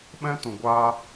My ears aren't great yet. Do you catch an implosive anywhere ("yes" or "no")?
yes